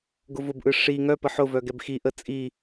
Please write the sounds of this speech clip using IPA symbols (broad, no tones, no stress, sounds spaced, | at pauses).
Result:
ɡ ʊ v ʊ b ʔ ɯ ʂ i ŋ œ p ə ħ ʊ v œ ɡ ɛ b x i ʔ ə t͡sʼ i